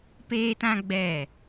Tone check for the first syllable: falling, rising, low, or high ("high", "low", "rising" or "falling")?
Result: high